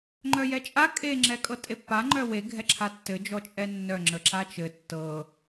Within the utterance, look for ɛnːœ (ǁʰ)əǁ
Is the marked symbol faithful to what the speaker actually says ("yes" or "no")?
no